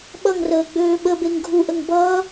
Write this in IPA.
ɓʌŋrəːɡ͡bøː ɓəbeŋ ɡʱuʔəŋ bʌː

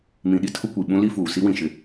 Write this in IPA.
mĩ˨ɗi˦ tʰʊ˦kʷi˨ ɓũ˦ li˦fuː˨ si˦wĩ˨ ʃɪ˦

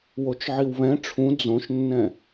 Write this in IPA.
wot͡ʃʕiwβɛ̃ ʈ͡ʂʰũ d͡zõʃnːɛ̃

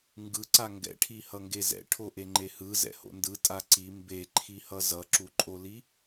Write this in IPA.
ŋɡɯǀa ŋɡɛ̰ʈʰi hʌŋɡezɛ̰ ʈʰoʔeŋ͡ǃehɯ zɛ̰ho̰ndɯ tʼaǀi mbeǃʰihʌ zʌǁuǃʼoli

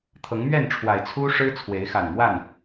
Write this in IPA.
t̪ʰɤ˨˦ŋmɥɛ˥˨nʈ͡ʂʰwa˨˩ɪ̯ t͡sʰu˦ ʂɻ̩˦ t͡sʰwe˨˦ɪ̯xa˨˩nmwa˥˨n

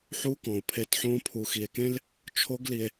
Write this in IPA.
ħuː˦kɔ̃ː˨o̯ pʰe˧tħõː˦ pʰu˨xi˨e̯kẽ˦l | t͡ʃʰo˦ɡli˧e̯

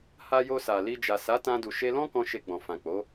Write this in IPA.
ha˧jo˧ sa˨li˧ d͡ʒa˨ sa˨˦tã˧du˨ ʃe˧lɔ̃˦kɔ̃˧ ʃe˧ɡ͡bɔ̃˨fã˨ k͡po˨˦

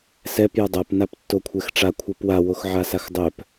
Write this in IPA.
sɛp jʌdˤap naptːokʷʰɛxʈ͡ʂa kʷʰʌpwa woxʕasaxdˤœp

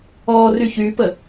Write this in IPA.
ɔ ryçypə

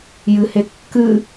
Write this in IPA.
jɨhe kːɨ

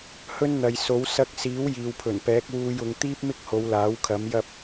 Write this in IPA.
hɵ˥nn̪ɐ˨jso˨˥w sɐ˧k̚ siː˨˥w jiː˨wpʰɵ˨˩npɛː˨˥k̚ wuː˧jʊ˨˧ŋ t̪iː˥p̚mɪ˥k̚ho˨˧w laː˨˥wkʰɐ˨˥mjɐ˥p̚

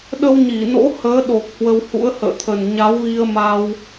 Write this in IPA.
ɗə˧wɲi˧˩no̰˧˥ həː˨˦ɗo˨˩k̚ hwə˧whṵ˧˥ə̯hə̰ː˧˨t̪ʰə˨˩n ɲa˨˦wɣi˧ə̯ma˧w

